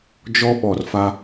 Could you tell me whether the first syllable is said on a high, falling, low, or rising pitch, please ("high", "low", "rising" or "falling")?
high